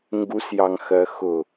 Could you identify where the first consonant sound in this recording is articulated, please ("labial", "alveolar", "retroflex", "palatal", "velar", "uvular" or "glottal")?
velar